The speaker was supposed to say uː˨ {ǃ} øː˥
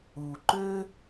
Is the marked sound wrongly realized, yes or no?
no